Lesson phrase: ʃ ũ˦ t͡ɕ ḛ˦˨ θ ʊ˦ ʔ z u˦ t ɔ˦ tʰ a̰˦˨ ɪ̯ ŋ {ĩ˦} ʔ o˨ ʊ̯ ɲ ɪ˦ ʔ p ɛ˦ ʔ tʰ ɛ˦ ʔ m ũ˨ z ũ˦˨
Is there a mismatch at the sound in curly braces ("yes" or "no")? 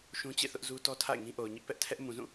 no